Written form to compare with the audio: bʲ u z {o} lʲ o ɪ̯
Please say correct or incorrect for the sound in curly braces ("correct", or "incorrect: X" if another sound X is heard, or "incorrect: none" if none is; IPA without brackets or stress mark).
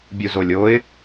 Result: correct